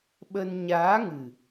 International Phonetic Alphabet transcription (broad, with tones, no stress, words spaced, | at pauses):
ɓə˧n ɲaː˨˦ŋɨ˨˩